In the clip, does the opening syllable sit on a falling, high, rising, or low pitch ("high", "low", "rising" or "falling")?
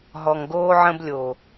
low